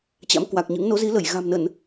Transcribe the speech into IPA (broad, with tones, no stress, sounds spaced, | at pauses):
t͡ɕ a̰˧˥ m k w a˨˩ k̚ ɲ ɨ̰˧˥ ŋ n o˨˦ z i˨˦ l ə˧˩ j ɣ a̤˨˩ m n ə˧˩˨ n